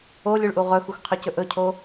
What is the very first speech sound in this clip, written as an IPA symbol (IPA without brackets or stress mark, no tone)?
o